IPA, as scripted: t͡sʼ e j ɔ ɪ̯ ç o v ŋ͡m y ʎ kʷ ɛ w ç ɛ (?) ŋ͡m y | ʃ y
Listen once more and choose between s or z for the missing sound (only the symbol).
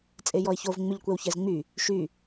z